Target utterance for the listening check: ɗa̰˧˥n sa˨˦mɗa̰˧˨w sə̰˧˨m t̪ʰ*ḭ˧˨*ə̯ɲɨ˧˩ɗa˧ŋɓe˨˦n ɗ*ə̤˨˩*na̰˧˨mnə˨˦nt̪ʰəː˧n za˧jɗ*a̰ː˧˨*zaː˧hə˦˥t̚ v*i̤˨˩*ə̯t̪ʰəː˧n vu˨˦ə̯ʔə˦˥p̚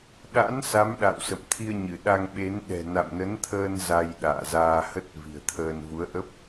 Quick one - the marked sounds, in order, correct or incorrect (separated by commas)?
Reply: incorrect, incorrect, correct, correct